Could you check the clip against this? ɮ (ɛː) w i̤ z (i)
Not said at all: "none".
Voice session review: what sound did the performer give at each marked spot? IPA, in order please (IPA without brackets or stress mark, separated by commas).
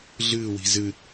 ɨː, ɨ